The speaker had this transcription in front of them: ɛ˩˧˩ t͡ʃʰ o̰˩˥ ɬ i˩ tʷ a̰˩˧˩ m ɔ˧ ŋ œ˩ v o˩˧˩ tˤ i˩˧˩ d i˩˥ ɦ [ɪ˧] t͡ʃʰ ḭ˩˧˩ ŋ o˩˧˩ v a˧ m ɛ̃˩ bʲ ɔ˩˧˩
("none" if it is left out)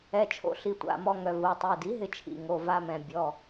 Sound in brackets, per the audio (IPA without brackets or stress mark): ɪ˧